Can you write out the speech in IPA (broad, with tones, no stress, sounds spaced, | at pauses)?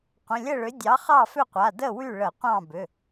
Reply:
qʷ ə̃˩˧˩ lʲ ə˥˨ ɭ ʏ˨˥ dʲ ɑ˨˥ χ ɑ˥˨ f ʏ˥˨ qʷ a˩˧˩ d ə˥˨ w y˥˨ ɭ ə˧˩˧ qʷ ɑ̃˥˨ b ʏ˩˧˩